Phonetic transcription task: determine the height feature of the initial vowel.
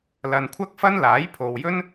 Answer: low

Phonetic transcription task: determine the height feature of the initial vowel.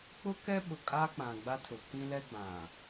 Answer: high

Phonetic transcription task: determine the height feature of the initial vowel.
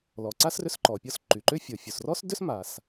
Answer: mid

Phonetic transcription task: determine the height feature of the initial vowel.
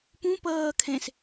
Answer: high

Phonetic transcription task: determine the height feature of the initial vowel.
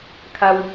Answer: low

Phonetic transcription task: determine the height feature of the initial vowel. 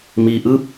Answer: high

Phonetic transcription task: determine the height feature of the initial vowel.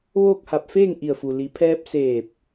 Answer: mid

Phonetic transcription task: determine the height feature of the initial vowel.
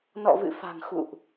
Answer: mid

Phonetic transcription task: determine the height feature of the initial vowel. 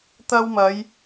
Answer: low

